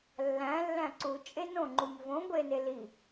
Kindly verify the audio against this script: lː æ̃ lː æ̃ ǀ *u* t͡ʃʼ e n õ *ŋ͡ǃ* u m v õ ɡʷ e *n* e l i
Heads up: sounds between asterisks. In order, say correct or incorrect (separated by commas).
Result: correct, correct, correct